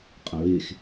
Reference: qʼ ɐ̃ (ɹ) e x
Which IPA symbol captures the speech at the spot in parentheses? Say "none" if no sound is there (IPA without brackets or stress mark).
ɹ